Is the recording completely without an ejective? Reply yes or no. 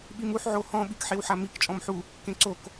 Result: no